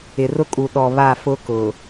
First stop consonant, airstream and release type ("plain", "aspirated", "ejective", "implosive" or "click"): ejective